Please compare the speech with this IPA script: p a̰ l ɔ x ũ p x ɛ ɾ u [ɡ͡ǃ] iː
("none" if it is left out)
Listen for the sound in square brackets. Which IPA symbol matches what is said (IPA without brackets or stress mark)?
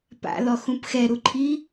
ǃʰ